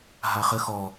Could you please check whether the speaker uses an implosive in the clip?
no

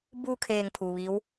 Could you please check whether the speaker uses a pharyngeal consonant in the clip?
no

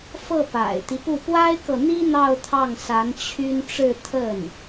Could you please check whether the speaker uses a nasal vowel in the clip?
no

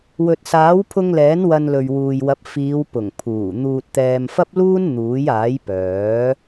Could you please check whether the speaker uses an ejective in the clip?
no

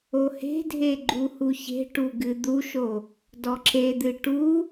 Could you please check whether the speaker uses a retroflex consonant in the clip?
yes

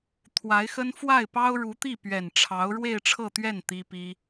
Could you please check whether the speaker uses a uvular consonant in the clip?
no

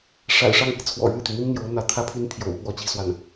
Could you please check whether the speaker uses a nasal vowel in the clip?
no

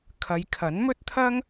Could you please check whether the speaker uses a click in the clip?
no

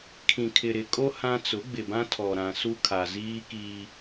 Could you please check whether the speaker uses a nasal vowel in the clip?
yes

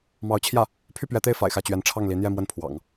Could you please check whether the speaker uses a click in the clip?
no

